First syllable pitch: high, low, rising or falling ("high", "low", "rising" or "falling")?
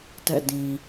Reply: falling